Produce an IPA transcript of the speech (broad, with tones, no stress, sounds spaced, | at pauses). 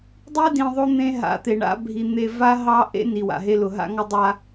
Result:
dˤ i˦ d ĩ˨ ðˤ o˦ n̪ ẽ˦ ɦ a̰˨ t̪ e˨ ɳ a̰˦ bʱ i˨ n̪ e˨ v a˦ ɦ ɑ˦ ʔ ḛ˦ n i˨ w a̰˨ ɦ e˦ l ʊ˨ ɦ a̰˦ ŋ ɔ˦ dˤ a˦